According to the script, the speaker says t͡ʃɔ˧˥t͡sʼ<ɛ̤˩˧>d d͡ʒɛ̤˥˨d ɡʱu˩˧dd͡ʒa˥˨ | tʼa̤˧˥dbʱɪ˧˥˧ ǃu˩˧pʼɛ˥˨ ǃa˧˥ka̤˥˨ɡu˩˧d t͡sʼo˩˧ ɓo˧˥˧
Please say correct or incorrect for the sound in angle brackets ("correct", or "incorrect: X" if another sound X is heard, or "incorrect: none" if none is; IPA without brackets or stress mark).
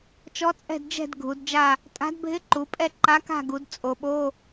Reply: incorrect: ɛ̤˥˨